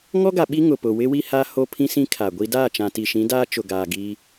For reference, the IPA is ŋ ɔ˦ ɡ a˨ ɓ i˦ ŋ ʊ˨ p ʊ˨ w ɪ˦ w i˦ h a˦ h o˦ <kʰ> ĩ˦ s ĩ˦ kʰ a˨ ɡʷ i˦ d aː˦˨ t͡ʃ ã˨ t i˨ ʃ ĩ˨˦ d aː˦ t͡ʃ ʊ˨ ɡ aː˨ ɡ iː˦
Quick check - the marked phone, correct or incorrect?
incorrect